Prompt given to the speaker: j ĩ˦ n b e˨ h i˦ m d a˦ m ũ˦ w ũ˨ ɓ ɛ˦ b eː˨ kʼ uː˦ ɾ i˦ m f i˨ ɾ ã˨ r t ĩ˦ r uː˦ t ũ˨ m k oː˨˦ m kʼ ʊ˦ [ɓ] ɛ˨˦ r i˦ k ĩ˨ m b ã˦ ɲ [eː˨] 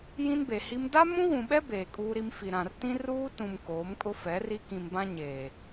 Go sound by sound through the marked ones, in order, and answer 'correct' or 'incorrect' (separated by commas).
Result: incorrect, correct